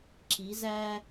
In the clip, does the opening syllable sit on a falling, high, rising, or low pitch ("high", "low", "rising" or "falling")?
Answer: rising